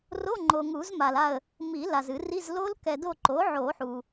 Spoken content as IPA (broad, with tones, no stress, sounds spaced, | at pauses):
r o˧˥˧ ŋ͡ǃ o˨ ŋ u˨˩˦ z m a˨ l a˦˨ ə̯ | m i˨˩˦ l a˨ z ɨ˨˩˦ r i˧˥˧ z l o˦˥ l k ɛ˨ d o˦˨ ǃ o˩˥ ʕ o˨˩˦ ħ u˨